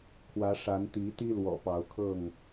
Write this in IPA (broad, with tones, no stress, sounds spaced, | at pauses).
kʰ w ä˨˦ ʂ a˨˦ n t̪ i˨˦ t̪ i˦ l w ɔ̰˨˩ p ɑ˨˦ ʊ̯ kʰ ɤ˥˨ ŋ